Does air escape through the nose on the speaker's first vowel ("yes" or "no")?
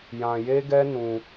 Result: yes